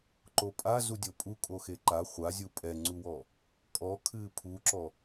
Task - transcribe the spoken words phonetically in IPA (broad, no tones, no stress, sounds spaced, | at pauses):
ǃ o pʼ a z u dʲ o pʼ u kʼ o x e ǃ a χʷ a zʲ u pʼ ɛ ŋ͡ǀ u w ɔ | kʼ ɔ kʰ ɨː pʰ u ǁ ɔ